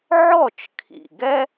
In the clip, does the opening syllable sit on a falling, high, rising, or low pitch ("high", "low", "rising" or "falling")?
falling